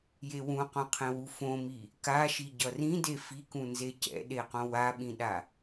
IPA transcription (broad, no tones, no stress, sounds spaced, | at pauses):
j e w ũ q õ qʰ ẽ w u f õ m i | k a ʃ i ɟ ʌ r ĩ d e f i k ũ n z e c ɛ̰ ɗ e q õ w a ɓ ĩ ɗ a